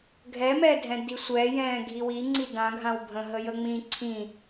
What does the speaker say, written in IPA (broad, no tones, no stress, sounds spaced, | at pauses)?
ɡʱ ɛ m ɛ dʱ ɛ̃ d i sʷ ɛ j ɛ̃ː ɡʱ i w i ŋ͡ǀ i d ã ɡʱ ã w bʱ ə̃ ɦ ə j ə ŋ͡m ĩ ǀʰ ĩ